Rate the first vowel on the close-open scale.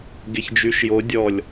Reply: mid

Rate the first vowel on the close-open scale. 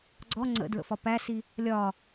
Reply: mid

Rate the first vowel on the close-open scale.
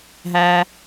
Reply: open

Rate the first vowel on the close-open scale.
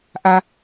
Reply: open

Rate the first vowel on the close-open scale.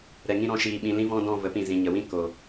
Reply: mid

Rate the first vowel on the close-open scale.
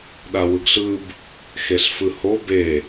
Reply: open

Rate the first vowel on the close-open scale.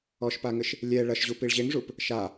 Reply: mid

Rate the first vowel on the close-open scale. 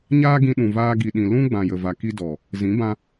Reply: open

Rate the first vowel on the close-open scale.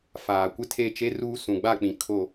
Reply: open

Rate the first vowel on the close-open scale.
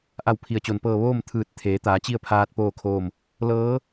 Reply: open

